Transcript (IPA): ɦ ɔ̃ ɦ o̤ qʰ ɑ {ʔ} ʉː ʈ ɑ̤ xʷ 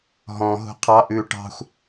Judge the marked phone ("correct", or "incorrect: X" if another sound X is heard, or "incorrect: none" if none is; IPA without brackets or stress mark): correct